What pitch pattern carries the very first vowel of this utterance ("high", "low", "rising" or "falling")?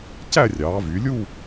falling